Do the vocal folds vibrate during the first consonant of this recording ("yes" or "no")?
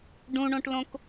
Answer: yes